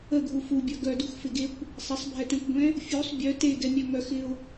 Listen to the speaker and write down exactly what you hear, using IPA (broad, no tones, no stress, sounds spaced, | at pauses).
ə ɡʱ u f u bʲ œ ɡ œ d u x f ɪ ɡ e kʷ | sˤ ɪ sˤ bʱ ɛ t ɛ̃ kʷ ɡʷ ɛ̃ | fʲ u sˤ bʲ œ t e ɡ ɛ mʲ œ ŋ œ x ɪ ʊ̯